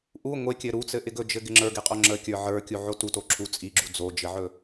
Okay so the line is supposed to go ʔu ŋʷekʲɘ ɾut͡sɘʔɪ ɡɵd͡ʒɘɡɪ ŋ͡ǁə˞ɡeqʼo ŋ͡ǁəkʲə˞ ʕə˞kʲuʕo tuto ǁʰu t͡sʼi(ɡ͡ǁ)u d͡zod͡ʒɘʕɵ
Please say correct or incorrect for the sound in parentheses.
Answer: correct